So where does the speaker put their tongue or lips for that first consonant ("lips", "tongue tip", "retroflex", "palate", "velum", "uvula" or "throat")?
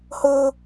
throat